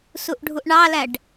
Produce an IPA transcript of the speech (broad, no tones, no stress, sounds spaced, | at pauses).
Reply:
s u ʔ ɖʱ u ʔ ɳ ɑ l æ ɖ